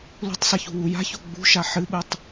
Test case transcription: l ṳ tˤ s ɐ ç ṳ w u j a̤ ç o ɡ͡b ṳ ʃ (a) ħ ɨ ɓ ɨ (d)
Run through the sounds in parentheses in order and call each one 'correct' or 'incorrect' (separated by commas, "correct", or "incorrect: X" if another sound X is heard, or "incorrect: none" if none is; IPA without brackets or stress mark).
correct, incorrect: tˤ